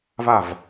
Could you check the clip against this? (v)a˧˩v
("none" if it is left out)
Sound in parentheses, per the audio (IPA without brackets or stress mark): v